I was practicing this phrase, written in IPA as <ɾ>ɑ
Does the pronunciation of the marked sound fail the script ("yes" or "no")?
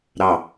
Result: no